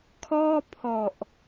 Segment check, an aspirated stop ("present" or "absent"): present